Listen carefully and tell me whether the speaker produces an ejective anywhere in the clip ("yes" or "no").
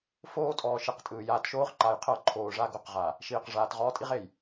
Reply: yes